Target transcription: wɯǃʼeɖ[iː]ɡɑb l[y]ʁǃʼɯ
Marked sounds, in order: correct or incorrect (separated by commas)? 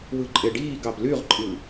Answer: correct, correct